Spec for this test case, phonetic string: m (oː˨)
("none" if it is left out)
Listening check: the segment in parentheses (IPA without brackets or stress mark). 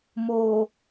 oː˨